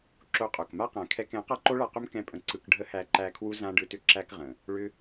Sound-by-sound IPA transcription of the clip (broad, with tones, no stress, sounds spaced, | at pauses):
ǁ o˦ qʼ o˨ k m a˦ q æ̃˨ kʰ ɛ˧ k ɛ̃˨˦ q a˦ ǃ o˦ ɭ a˧ q ʏ˦ m k ɛ̃˦ pʼ ə̃˧ ǀ ɯ˧ k ɖʱ ə˦ h æ˧ ǃ æ˧ kʰ w u˦ z ã˦ ɖ ɯ˧ t ʏ˦ ǁ æ˦ k ʁ ə̃˨ | ɭ ʏ˦